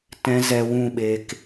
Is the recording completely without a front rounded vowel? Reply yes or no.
yes